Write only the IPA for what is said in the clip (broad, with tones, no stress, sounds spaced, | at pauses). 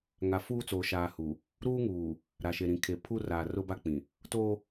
ŋ a˨ f uː˦ t͡s oː˨ ʃ aː˨ h u˨ | ɾ uː˦ ŋ uː˨ | ɾ a˨ ʃ e˨ ɾ ĩ˨ kʰ e˨ pʰ u˦ r aː˨ r ʊ˦ b a˦ k͡p ĩ˨ | t o˦